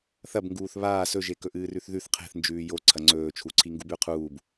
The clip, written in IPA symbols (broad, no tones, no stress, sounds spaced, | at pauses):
θ ɐ b ŋ ɡ uː θ β aː s ɵ ʒ e k ɵ ʔ ɨː r ʉ θ ð ʉ θ qʰ e̤ θ n d͡ʒ ʉː j o ǀʰ ɐ ŋ͡ǀ ɵː t͡ʃʰ u ǀʰ i ŋ ɡ u b ʉ qʰ uː b